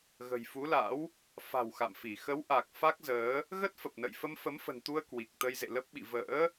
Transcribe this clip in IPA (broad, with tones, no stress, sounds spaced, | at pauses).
ɣ ə̤˨˩ j f u˨˦ l a̰˧˥ w | f a̤˨˩ w x a̰˧˨ m f i˧˩ x ə˨˦ w ʔ a˨˩ k̚ f a˦˥ k̚ z əː˨˦ | ɣ ə˦˥ t̚ f ə˨˩ p̚ n ə̰˧˨ j f ə˧ m f ə˨˦ m f ə̤˨˩ n t̪ u˧ ə̯ k w i˨˩ k̚ t̪ ə˧ j z ḛ˧˨ l ə˦˥ p̚ ɓ ḭ˧˨ v ə̰ː˧˥